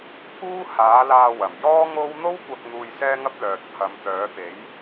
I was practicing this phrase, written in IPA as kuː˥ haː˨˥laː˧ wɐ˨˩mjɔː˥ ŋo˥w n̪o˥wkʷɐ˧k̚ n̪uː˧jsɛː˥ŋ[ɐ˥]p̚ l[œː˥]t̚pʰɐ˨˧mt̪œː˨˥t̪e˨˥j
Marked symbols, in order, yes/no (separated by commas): yes, no